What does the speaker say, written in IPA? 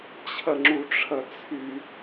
t͡ɕʰ ɐ ŋ͡ǁ u ʈ͡ʂʰ ɐ t͡sʰ y

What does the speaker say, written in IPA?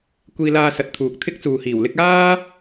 kʷ iː˧ l aː˧ s ɐ˨˥ t̚ t̪ʰ uː˨ k̚ t̪ʰ ɪ˥ k̚ t͡s uː˨ h iː˨˩ w l ɪ˥ k̚ aː˥

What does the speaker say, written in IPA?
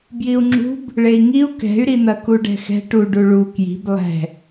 b j i u̯ ŋ͡ǁ ṳ b | ɭ e i̯ ŋ i u̯ k ɛ̤ y̯ ɾ i n̪ ɐ k u ɖ ɛ̤ x ɛ̤ ʈ u ɖ u ɭ u k j i̤ b lˠ ɛ̤

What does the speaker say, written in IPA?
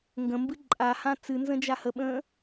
ŋ ɡ ə̃ m b ɨ ǃʼ a h ã t͡s ɨ n z ə̃ d͡ʒ a h ə ɓ ə̃ː

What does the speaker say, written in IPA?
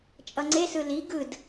t͡ʃʼ ʌ ŋ͡ǀ e s ɯ l i ɡ ɯ d

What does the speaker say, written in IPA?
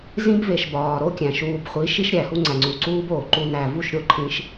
z ĩ˦ b v e˨ ʃ b ɒː˨ ɾ o˦ kʲ æ̃˨ ʃ uː˨ b χʷ i˨˦ ʃ i˦ ʃ ɾʲ æ˨ h u˦ ŋ͡ǀ æ˨ ŋ͡ǀ u˨ ǀ uː˦ b oː˨ ǃ u˨ n æ˨ v u˦˨ ʃ ɾʲ o˦ ǃʰ ĩ˦ ʃ

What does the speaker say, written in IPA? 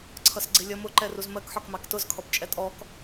ǀʰ ʌ s ɡ͡ǀ ɪ lʲ ʌ m ʊ ǃ ɛ r u z m ɜ k ħ ɒ k m ɑ k t ʊ z kʰ ɔ p t͡ʃʼ ɛ tʼ ɔ k

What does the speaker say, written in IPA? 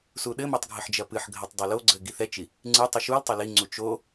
s u ɗ ɘ m o tˤ ɡʱ ɘ ħ d͡ʒ ɐ p ɨ ħ ɡʱ ɐ tˤ dˤ ɘ l o ɡ͡ǀ ɘ ɡ i θ ɛ t͡ʃ i | ŋ͡ǀ ɨ tˤ ɨ ʃ u l tˤ ɐ l i ŋ͡ǀ u t͡ʃ o

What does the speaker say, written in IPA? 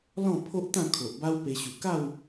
l ɔ̃˥˧ pʰ o˦ ʔ t̪ ã˥˧ kʰ o˨ ʔ b a˦ w p e˧ ɕ u˨˩ k a˥˧ w

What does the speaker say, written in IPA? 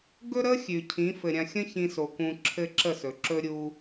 ɡ ɵ˦ ɾ ə˦ xʲ ʉ˨ cʰ ĩ˨˦ f ɘ˨ ɾʲ ã˧ xʲ ə̃˦ ç ĩ˧ s o˨ k ũ˧ ǁʰ ɘ˦ ǁ ə˦˨ s ɵ˨ ǁ ɵ˦ ɾʲ u˦

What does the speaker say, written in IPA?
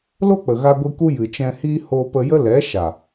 l o˦ k͡p ə˨ ɣ a˧ ɡʷ i˧ k u˦ j ɨ˨ t͡ʃ ɛ̃˧ h iː˦ h oː˧ p ə˧ j ə˦ l ɛ˨˦ ʃ a˨

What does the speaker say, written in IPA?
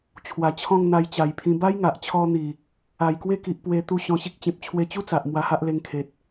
t͡ɕʰ w a˨˩ t͡ɕʰ ɔ̃˥˧ ŋ n̪ a˧ j t͡ɕ a˨˩ j pʰ ĩ˧ b a˦ j ŋ a˨ ʔ t͡ɕʰ ɔ˧ n̪ i˨˩ | a˨˩ j k w e˦ k i˨ ʔ p w e˧ t̪ u˧ ɕ ɔ̃˧ ɕ i˦ k̚ t͡ɕ ẽ˨ p̚ t͡ɕʰ w e˧ t͡ɕ u˦ t͡s a˨ ʔ m w a˧ h a˦ ʔ l e˧ ŋ kʰ e˨ t̚

